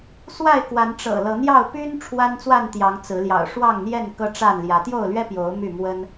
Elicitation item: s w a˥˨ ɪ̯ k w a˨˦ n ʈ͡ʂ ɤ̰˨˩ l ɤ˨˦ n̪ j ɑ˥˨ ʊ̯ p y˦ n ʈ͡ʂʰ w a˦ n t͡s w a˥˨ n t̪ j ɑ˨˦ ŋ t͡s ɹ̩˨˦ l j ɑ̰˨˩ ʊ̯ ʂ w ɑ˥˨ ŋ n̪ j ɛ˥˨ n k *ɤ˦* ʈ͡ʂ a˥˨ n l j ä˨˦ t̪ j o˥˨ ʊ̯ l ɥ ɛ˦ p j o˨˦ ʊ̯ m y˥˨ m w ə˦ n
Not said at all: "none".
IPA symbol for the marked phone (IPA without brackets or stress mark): ɤ˦